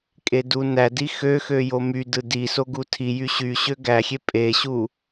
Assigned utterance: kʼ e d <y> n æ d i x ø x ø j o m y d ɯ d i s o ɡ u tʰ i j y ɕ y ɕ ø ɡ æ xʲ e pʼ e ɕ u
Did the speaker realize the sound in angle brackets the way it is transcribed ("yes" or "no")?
no